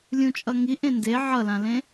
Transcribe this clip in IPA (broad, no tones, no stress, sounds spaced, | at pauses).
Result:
lʲ ũ t͡ʃʼ ʌ ŋ i ʔ ẽ n d e ʕ ʌ l ã l ẽ